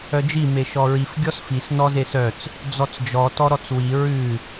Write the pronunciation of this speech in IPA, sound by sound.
œ d͡ʒ i m e ʃ ɔ ɹ i f ɡʲ ɔ s f i s n ɔ z e s œ t͡s | d͡z ɔ t͡s d͡ʒ ɔ t ɔ ɾ ɔ t͡s w i ɹ ʉ

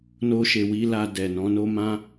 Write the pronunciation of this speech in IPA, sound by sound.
n o˧ ʃ e˨ w i˧ l a˧ d ɛ˨ n ɔ̃˨˦ n o˦ m ã˦

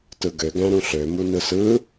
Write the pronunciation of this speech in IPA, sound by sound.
t ɯ ɡ ø ɡ æ̃ ɾ ũ ɬ ø m u n ɯ s ɯ

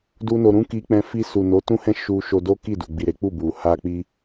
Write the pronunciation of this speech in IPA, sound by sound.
d u˦ n o˧ ɾ ũ˦ k i˧ k͡p ɛ̃˦ f i˧ s u˨ n o˨˦ t ũ˦ h ɛ̃˦ ʃ u˧ ʃ o˧ d o˦ k i˦˨ d u˨ ɡ͡b i˨ ɾ e˨˦ k͡p u˦˨ b u˨ h a˧ k͡p i˧

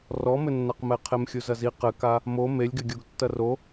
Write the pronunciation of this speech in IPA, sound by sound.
r ɔ m ɘ nː a q m ɛ qʰ e m xʲ u z ɐ z i q ɘ k a | m o m e lʲ ɡ ɘ ɡʲ o ɡ tː ɐ r o

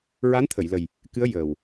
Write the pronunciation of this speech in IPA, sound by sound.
ɹ a˧˥ n t̪ʰ ə˨˩˨ j l ə˨˩ j | k ɨ˧˥ ə̯ j əː˨˩ w

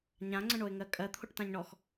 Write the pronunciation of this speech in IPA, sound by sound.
ɲ ã ŋ͡ǀ ə̃ ɳ o ɪ̯ ŋ ɜ kʼ ɜ t̪ʰ o ʈ t ã ɲ ɳ ɔ x

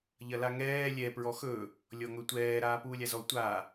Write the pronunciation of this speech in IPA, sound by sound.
ʎ ɐ l a ŋ ɛː lʲ ɛ p ɹ ɔ x ɵ | lʲ ɔ ŋ ɵ tʷ ɛː ɾ aː p uː lʲ a z ɔ tʷ a

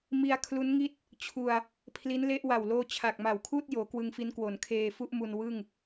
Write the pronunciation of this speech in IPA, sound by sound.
m i˧ a̯ kʰ l u˦˥ n ŋ i˥˩ t̚ | t͡ɕʰ u˧ a̯ | pʰ l i˦˥ n l e˦˥ ʔ w a˨˩ w l oː˧ t͡ɕʰ a˨˩ k̚ m a˨˩ w kʰ uː˥˩ t̚ j oː˩˦ k w ɯ˧ ŋ f i˦˥ n k w o˩˦ n kʰ eː˧ f u˥˩ ʔ m u˧ n w ɯ˥˩ ŋ

